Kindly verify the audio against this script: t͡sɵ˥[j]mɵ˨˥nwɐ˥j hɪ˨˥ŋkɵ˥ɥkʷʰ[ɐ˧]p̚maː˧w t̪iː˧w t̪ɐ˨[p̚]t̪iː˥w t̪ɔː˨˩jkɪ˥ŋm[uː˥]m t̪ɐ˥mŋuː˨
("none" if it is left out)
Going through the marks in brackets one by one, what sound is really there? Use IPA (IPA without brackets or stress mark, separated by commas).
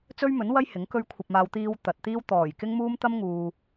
ɥ, ɐ˧, t̚, uː˥